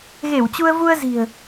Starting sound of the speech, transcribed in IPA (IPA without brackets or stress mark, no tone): ɣ